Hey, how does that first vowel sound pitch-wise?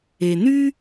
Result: low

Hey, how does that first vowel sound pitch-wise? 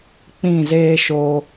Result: falling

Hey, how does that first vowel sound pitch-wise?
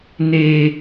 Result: high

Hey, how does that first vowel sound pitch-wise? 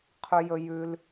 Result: high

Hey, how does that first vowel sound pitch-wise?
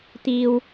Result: high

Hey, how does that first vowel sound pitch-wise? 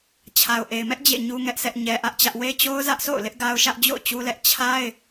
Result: low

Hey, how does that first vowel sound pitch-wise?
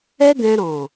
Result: high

